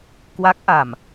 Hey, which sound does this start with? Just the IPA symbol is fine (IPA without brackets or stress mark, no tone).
k